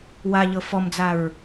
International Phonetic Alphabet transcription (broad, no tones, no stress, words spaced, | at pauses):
wa ʎɤfɔmd͡zaɹ